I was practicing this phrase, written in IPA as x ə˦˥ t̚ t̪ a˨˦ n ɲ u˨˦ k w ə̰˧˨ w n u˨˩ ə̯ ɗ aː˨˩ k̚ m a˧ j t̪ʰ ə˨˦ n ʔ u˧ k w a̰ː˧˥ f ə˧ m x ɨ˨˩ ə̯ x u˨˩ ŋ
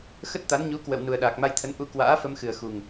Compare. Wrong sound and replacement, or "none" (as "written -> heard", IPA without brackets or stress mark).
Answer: none